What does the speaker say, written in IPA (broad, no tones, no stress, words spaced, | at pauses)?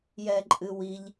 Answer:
jɛǃʼɨwiʎ